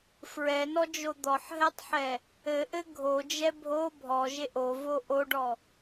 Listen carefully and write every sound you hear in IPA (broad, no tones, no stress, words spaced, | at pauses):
fɹɛnɔd͡ʒo d̪ɔħɦɛtˤħɛ | ɘʔɘ ɡʱod͡ʒɛ bʱo bʱɔʒeʔ ovo ʔoɖɔ